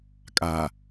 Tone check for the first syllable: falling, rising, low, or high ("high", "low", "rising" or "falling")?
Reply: low